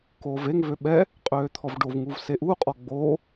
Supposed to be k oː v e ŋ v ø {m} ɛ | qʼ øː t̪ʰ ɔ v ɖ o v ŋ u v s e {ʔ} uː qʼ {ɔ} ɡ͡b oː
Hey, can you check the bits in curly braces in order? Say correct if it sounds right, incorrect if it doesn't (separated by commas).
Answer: incorrect, correct, correct